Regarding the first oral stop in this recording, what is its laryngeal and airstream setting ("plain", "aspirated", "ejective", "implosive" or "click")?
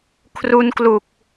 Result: aspirated